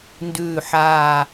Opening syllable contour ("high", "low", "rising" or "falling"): low